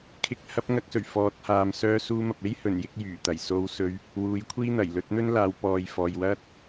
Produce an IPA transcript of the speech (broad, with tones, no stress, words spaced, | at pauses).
kʰɪ˨˥k̚hɐ˨˥p̚ ŋɐ˧k̚sɵ˨˩ɥ fɔː˨˥t̚haː˨m sœː˧suː˧mɐ˨p̚e˥j hɵ˨˩njɪ˨˥k̚ jyː˨˩t̪ɐ˨˩jso˧wsɵ˧ɥ | wuː˨˥jkʷʰiː˥ n̪ɐ˨˩jlɵ˨˥t̚n̪ɵ˥nlaː˨˧w pɔː˨j fɔː˨jwɐ˥t̚